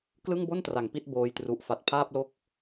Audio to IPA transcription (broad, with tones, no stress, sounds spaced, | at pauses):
k l ɯ˥˩ ŋ b o˥˩ n t r a˩˦ ŋ p i˥˩ t̚ b oː˧ j t r u˨˩ ʔ f a˨˩ t̚ pʰ aː˥˩ p̚ l o˥˩ k̚